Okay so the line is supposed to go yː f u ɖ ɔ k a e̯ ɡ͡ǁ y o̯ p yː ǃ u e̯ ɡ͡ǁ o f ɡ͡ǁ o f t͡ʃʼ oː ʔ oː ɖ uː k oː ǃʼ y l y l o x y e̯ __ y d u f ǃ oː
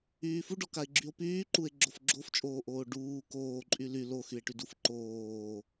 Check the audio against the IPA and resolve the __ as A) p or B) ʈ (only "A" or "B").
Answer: B